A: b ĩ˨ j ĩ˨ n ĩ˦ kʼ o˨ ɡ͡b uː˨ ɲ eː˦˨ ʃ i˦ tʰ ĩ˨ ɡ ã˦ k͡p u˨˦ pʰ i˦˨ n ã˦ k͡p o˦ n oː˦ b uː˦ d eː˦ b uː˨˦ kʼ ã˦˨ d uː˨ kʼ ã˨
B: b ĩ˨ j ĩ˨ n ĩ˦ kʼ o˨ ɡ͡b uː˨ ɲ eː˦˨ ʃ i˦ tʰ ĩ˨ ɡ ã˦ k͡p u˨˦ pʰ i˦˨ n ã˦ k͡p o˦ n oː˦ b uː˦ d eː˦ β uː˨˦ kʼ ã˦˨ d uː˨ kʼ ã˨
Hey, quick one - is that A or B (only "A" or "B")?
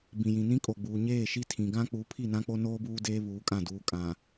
B